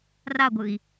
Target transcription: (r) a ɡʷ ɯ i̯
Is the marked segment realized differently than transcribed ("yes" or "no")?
no